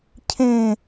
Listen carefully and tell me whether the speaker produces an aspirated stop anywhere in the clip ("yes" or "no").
yes